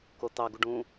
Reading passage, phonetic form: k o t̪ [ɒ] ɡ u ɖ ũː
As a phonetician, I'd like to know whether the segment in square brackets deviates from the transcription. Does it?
yes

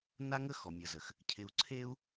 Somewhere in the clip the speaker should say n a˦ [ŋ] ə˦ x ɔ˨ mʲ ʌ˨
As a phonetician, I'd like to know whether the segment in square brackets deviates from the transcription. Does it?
no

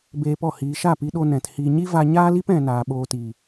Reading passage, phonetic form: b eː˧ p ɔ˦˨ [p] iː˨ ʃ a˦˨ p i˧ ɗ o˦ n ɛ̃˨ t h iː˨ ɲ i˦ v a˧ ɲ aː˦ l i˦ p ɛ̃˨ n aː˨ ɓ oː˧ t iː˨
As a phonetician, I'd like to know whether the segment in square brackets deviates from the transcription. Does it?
yes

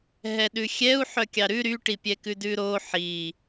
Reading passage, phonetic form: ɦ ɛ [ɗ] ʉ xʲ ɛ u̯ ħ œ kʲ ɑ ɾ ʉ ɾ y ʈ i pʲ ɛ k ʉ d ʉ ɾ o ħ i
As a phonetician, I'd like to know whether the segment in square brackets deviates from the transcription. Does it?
no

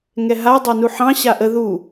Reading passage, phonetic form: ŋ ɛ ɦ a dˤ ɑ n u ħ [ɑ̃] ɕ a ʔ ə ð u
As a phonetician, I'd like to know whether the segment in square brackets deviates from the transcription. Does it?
no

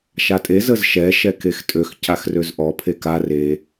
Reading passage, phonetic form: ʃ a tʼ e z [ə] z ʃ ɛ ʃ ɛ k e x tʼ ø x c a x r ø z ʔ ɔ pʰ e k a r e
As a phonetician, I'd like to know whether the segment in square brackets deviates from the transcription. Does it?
no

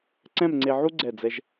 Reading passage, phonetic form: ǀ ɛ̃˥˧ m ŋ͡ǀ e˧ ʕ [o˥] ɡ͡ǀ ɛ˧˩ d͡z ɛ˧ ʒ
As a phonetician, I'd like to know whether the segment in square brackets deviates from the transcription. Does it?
yes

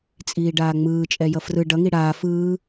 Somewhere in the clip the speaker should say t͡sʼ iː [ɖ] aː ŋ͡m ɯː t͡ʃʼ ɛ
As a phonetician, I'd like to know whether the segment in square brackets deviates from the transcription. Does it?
no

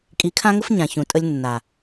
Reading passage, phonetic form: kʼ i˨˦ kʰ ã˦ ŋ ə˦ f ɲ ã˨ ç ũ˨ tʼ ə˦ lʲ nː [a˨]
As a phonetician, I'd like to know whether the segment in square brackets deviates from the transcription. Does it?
no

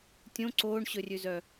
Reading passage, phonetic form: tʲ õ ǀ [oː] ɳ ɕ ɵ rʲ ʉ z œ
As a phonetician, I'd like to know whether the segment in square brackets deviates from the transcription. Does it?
no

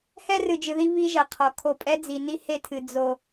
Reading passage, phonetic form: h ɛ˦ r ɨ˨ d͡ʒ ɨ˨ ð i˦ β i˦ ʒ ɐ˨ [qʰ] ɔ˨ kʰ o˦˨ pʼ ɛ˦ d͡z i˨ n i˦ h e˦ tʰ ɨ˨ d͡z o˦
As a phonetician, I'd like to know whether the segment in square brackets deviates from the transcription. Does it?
no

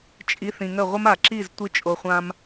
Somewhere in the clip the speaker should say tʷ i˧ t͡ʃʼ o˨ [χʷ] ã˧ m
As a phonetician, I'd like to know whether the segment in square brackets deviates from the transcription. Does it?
no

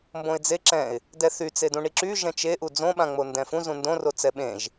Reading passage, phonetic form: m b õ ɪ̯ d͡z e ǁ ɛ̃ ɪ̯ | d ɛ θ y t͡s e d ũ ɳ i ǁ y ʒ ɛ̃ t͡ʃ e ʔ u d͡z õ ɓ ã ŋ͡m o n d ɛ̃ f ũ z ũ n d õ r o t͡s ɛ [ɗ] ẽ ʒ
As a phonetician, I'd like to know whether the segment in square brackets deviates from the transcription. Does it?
yes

